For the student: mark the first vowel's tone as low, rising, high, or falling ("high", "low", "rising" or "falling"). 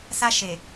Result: high